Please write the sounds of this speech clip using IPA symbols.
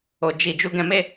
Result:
o˨ d͡ʒ i˨ d͡ʒ u˨˦ ɡ ɛ̃˧ m e˦

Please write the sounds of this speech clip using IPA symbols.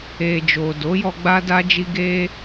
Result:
e˨ d͡ʒ o˨ d o˨˦ j ɔ˧ ɡ͡b a˦ d a˦ d͡ʒ i˦ ɡ e˦

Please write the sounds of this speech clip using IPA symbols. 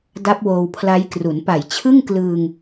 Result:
d a˦˥ p̚ w oː˧ w pʰ l a˦˥ j k r u˩˦ n p a˨˩ j t͡ɕʰ ɯ˥˩ ŋ k l ɯː˧ ŋ

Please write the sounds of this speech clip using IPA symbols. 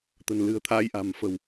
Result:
t̪ ə̤˨˩ n l ɨ̤˨˩ ə̯ t̪ʰ aː˧ j ʔ a̤˨˩ m f ə̤˨˩ w

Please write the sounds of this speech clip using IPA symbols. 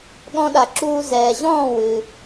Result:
ɠ ɔ̃˧ ɗ a˩ ǁ uː˧ z ɛː˩ ʑ ɔ̃ː˥˩ w ɨ˩

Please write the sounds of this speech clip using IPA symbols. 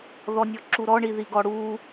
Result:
ð ɔ nʲ ɔ ǁ u ɾ ɔ ɳ i ð i ɡ ɔ ɽ u

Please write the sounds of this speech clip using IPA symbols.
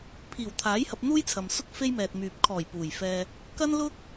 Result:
pʰ iː˨˩ w t̪ʰ aː˨˥ j h ɐ˧ p̚ n̪ uː˥ j t͡sʰ ɐ˨ m s ʊ˥ k̚ f e˥ j m ɛː˨ t̚ m yː˨ p̚ kʰ ɔː˨˩ j p uː˨˩ j f ɛː˧ | k ɐ˥ n l ʊ˥ k̚

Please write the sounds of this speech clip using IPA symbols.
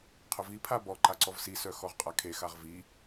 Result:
qʰ ʊ v i pʰ a b ɔ ǃ a ǀ ɔ v s i s œ x ɔ ʁ qʼ a kʰ e x a ʁ v i

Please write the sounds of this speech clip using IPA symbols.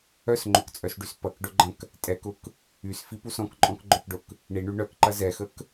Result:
œ s ŋ͡ǃ ʊ k t͡sʼ œ s ɖ y s p ɐ k ɖ ʊ ɡ͡ǃ ɐ̃ k | tʼ ɛ k ʊ k | y s f i p u s ɔ̃ k ǃʼ ɔ̃ k ɡ͡ǃ œ k ɖ ʊ k | ɳ i ɳ y ɳ œ k ǃ ɐ z ɛ x ə k

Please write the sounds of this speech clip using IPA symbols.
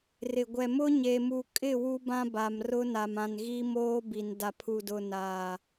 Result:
r ɪ˨ ɡʷ ɛ˨ m ʊ˦ ɲ e˨ m u˨ kʼ ɪ˦˨ w u˦ b ã˦ b a˨ m r ʊ˦ n a˨ m ã˨ n ɣ i˦ m oː˦ b i˨ n d a˨ pʰ u˨ d ʊ˨ n aː˨

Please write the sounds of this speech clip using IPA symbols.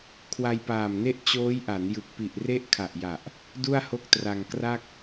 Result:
kʰ w a˧ j p aː˨˩ m n e˥˩ ʔ t͡ɕ oː˦˥ j ʔ a˩˦ n j ɯ˨˩ k̚ p i˨˩ ʔ r e˥˩ ʔ kʰ a˨˩ ʔ j a˨˩ ʔ | d u˥˩ a̯ h o˥˩ k̚ t r a˧ ŋ k r a˥˩ k̚

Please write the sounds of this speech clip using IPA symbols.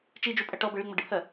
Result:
t͡ʃ i d͡ʒ u pʼ ɐ ʈ ɔ b ə ɭ i ŋ͡m ɐ ɖ ɪ pʰ ɜ

